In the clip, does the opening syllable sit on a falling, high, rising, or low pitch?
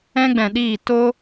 high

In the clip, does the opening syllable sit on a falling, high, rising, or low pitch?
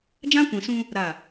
high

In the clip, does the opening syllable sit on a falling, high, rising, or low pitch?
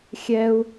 high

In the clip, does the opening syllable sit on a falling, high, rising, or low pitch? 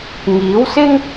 rising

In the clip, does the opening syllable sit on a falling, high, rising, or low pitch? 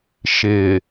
low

